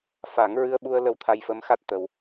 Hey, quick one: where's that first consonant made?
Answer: lips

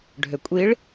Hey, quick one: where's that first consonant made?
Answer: retroflex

